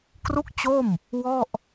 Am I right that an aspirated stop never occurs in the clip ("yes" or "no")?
yes